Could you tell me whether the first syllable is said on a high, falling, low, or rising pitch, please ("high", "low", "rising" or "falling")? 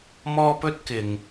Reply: high